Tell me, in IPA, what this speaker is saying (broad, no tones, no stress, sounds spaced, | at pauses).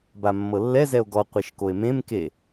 b a mː ɤ lː ɛ z ɛ o̯ ɡ ɔ qʷ e ʃ k o e̯ m ẽ m k e